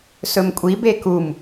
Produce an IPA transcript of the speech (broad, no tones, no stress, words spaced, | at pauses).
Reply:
sɵmkʷʼi bekum